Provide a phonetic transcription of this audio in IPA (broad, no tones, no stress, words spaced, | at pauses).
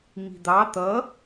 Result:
ŋ͡mi̤d̪ɑ t̪ʌ